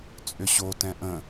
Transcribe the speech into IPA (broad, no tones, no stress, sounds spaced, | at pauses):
t͡sʼ ʏ ɕ o t ɛ̃ ʔ ə̃